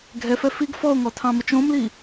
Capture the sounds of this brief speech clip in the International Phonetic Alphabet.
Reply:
ɡʱ ɛ f ɛ f i ɡ f ɔ o̯ ŋ ɔ tʰ ɑ̃ m ə t͡ʃ õ m l i

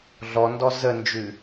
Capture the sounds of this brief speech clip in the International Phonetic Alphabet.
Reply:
ɮ ɔ n d ɔ z ə n d͡ʒ ʉ

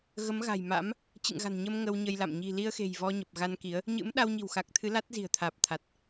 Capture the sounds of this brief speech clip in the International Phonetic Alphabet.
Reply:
ɣ ə˨˦ m ɣ a̤˨˩ j m a̰˧˥ m | t͡ɕ ɨ̰˧˨ ŋ ɣ a̤˨˩ n ɲ ə˧ m ŋ ə˧ w ɲ ə˧ j l a̰˧˨ m ɲ i̤˨˩ l i˧ ə̯ x e̤˨˩ j v ɔ˧ ɲ ə˨˩ p̚ ɣ a˧ n k i˨˦ ə̯ | ɲ ɨ̰˧˥ m ɗ a˧ w ɲ i̤˨˩ w x a˨˩ k̚ t̪ʰ ɨ˨˦ l a˦˥ t̚ z i̤˨˩ ə̯ t̪ʰ aː˨˩ p̚ t̪ʰ a˨˩ t̚

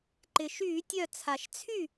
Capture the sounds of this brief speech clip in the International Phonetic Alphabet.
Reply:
ǃ ɪ˩ ʃ yː˧˩˧ tʲ œ˧˩ t͡sʰ a˩ ʃ t͡sʰ y˥˩

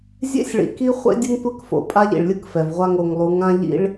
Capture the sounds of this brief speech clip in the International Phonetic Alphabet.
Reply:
zʲ ḛ˦ sʲ ɭ ḭ˨ k i˦ χʷ ḛ˦ dʲ ɯ˦ ŋ tʷ ɛ˦ k f o̰˨ pʼ a˦ ʎ ḭ˨ ɭ lʲ ɯ˦ k f ɛ˨ v ʁʷ a˦ ŋ o˨ ŋ lˠ u˨˦ ŋ ã˦ ʎ ḭ˦ ɭ

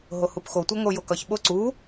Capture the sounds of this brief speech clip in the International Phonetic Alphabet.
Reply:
ɦ o h u p x o tʷ ʌ ŋ o j o k ʌ ç ɓ o ǀ u

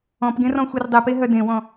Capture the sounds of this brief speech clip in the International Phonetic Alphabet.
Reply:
ɔ̃ p ɡ ẽ r ɔ̃ xʷ i r dˤ i p e ɦ œ d ẽ w ɔ̃

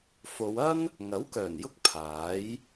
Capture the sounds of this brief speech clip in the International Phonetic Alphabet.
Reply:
f o˨˧ w ɐ˥ n | ŋ ɐ˨˥ w k œː˨˩ n j ʊ˧ k̚ pʰ aː˨˥ j

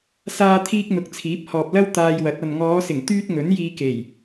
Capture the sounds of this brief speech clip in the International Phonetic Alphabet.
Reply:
s aː˥ t̪ʰ iː˥ k̚ n̪ ʊ˨˥ k̚ t͡sʰ iː˨˥ p̚ h ɔː˨ p̚ l ɐ˥ w t̪ aː˧ j w ɐ˨˥ t̚ ɐ˨ n ŋ ɔː˨˧ s ɪ˨˩ ŋ t̪ yː˥ t̚ ŋ ɵ˨˥ n j iː˧ k e˨˩ j

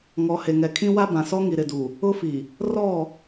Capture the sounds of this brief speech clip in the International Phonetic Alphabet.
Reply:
ŋ ɔ˨ h e˨ ŋ ɛ˨ kʰ ĩ˦ w a˦ b ã˨ s ɔ˦ ŋ i˨ ɾ ɪ˨ d u˨ | ʊ˦ f i˨ | r ɔ˦˨

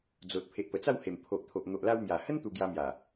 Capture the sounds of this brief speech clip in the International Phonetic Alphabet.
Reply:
d͡z o˨ t̚ pʰ e˨ ʔ p ə˨˩ t͡s a˥˧ w h e˨˩ m pʰ o˨ ʔ t̪ʰ o˨ ʔ n̪ o˨ ʔ l a˧ w m j a˨˩ h ə˦ n t̪ u˧ ɡ j a˧ m j a˨˩

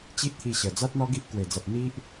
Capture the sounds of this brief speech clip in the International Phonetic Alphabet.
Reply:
t͡ɕ i˦ ʔ t̪ʰ i˧ ɕ ə˨˩ d͡z a˦ t̚ n̪ ɔ˦ ɡ i˦ ʔ k w e˨˩ d͡z a˨ p̚ n̪ i˦ ʔ

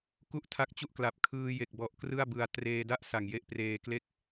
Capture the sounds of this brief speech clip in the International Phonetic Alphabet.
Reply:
k u˥˩ ʔ tʰ a˦˥ k̚ t͡ɕ u˥˩ ʔ k l a˨˩ p̚ kʰ ɯː˧ j e˨˩ k̚ b ɔ˨˩ ʔ k r ɯ˥˩ a̯ b ɯ˧ a̯ t r eː˧ d a˥˩ ʔ s a˨˩ ŋ j e˦˥ ʔ p r eː˧ k l e˥˩ k̚

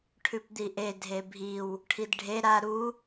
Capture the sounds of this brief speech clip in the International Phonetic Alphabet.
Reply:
ʈʰ ʉ p d̪ i ʔ e dʱ e bʱ i w | ʈʰ i d ɖʱ e ɾ a ɾ u

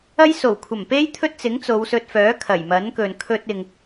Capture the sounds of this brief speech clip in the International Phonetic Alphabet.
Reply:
ɐ˥ j s o˨˩ w kʷʰ ɐ˨˩ m p e˥ j t̪ʰ ɵ˥ t̚ t͡s ɪ˨˥ ŋ t͡s o˨˧ w s ɵ˧ t̚ f œː˨˥ kʰ ɐ˨˩ j m ɐ˨˥ n k ɵ˨ n kʰ ɵ˧ t̚ ɪ˨ ŋ

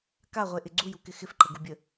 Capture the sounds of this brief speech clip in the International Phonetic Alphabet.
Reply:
k a ʁʷ e ʔ ɪ ɡ͡ǀ u j u k ɪ x ɪ f ǃ ə ɡ u bʲ ə

